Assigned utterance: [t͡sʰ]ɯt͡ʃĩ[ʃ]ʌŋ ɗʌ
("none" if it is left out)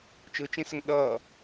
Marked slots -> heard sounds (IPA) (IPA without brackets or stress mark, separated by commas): t͡ʃ, s